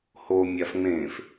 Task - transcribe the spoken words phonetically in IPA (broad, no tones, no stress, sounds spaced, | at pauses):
h o mʲ a f ŋ͡m ẽ f